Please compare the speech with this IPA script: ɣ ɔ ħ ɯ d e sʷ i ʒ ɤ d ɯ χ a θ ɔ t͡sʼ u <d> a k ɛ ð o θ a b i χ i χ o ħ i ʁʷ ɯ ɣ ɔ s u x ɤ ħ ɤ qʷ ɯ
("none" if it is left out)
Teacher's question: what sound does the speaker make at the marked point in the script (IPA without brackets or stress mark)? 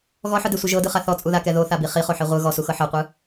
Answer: ð